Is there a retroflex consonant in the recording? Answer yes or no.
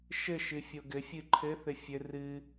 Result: no